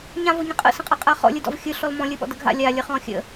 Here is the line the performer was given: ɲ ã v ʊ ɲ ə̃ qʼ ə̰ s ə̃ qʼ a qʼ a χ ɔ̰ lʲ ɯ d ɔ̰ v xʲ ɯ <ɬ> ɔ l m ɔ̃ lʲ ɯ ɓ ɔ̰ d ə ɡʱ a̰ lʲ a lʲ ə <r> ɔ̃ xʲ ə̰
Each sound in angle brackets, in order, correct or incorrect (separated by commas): correct, incorrect